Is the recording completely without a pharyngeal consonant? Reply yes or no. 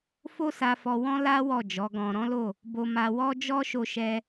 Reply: yes